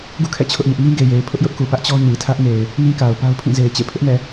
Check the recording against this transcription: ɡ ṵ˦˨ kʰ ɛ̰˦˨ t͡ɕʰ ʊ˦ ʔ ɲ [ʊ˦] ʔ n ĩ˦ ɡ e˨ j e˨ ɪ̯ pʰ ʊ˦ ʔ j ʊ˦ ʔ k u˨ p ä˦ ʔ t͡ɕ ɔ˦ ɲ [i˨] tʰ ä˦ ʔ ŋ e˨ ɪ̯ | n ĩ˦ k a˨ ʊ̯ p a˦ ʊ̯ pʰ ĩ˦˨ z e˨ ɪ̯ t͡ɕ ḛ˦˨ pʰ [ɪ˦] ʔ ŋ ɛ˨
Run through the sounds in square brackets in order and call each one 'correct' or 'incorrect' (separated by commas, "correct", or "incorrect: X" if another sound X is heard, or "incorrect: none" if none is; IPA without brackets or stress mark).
correct, correct, correct